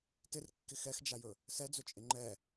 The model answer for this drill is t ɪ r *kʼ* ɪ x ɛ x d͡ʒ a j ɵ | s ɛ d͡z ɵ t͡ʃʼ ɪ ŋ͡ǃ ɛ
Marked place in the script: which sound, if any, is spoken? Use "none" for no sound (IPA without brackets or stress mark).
kː